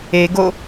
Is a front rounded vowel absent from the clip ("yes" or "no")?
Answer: yes